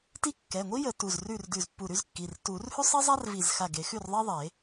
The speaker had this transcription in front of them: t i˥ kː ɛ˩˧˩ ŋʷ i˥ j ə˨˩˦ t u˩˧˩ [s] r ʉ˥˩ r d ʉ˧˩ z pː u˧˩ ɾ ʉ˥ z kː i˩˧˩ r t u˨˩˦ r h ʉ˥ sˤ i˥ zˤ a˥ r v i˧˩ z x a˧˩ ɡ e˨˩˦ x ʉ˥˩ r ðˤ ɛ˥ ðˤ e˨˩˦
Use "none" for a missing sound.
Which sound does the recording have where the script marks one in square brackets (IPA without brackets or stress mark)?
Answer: z